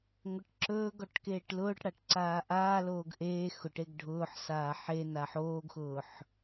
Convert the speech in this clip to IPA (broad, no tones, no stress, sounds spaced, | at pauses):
ŋʷ e ʈ ǁ ɵː ɡ ɔ ʈ k eː ʈ l ʊː ʈ ɽ a ʈ ǀ aː ʔ aː l oː ɡ ʔ eː x ʊ ʈ e ɡ ɖʱ ʊː ħ s aː ħ e n a ħ oː ɡ x ʊː ħ